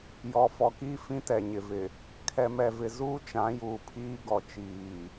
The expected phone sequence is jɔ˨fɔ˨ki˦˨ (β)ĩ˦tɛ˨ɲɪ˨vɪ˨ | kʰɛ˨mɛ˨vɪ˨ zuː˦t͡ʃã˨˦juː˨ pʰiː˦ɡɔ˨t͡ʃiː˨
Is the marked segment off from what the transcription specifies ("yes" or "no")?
yes